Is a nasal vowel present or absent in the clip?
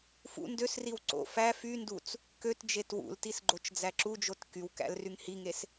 absent